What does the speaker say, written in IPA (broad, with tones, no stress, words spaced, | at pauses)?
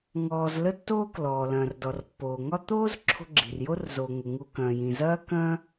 ŋɔː˨z lə˦tːoː˦klɔː˩ lɐ̃ː˩rdɔ˩rpːoː˩ŋɒ˦ t̪oː˥z ǁʰo̤˦ɡ͡ǁi̤˩rjo˥rzoː˨ ŋʊ˩ ŋu˨ kɐ̃ː˩jĩ˩ zɐː˥kɐ̃˥